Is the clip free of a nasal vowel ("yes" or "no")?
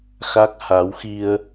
yes